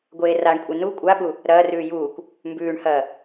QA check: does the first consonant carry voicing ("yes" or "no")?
yes